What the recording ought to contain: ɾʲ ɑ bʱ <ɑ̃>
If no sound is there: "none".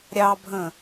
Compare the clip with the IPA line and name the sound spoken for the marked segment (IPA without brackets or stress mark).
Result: ə̃